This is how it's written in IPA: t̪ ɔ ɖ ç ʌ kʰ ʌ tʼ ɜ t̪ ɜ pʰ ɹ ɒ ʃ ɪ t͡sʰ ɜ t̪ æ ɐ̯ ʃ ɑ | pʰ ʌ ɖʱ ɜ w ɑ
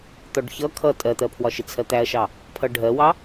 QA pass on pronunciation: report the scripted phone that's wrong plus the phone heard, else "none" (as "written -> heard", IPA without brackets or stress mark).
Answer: ɹ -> w